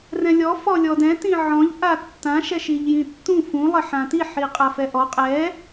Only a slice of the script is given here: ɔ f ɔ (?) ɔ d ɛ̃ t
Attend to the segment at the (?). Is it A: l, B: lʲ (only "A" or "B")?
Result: B